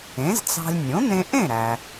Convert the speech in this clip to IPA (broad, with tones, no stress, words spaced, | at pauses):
ẽ˩˥zt͡sɑ̤˧lʲ nʲõ˩˥n̪ẽ˧ ʔẽ˥˩ɾæ˩